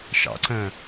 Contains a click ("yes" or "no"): yes